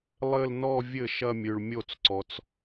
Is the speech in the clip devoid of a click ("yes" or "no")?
no